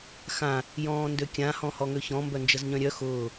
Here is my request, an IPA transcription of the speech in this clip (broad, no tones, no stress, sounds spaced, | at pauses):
x ã | j ɔ̃ː n d ø kʲ ã h ɔ̃ h ɔ ŋ ø ç ɔ̃ m b œ n d͡ʒ ə z ɲ œ̃ ɾʲ œ x ʊː